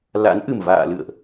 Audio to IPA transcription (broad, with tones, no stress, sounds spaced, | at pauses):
l a̰˧˥ n ʔ ɨ˨˩ m v a̰ː˧˨ l ɨ̰˧˨ ə̯ ʔ